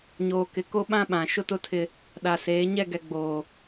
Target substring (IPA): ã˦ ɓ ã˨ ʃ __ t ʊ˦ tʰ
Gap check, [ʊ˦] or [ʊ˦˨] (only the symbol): ʊ˦